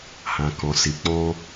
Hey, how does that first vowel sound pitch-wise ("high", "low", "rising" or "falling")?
low